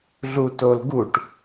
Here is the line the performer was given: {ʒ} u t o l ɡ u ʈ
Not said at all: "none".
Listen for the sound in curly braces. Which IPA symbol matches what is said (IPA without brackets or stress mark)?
ɮ